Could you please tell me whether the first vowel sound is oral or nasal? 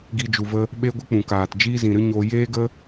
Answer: oral